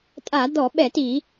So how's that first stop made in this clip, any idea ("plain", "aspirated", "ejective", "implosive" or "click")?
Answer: ejective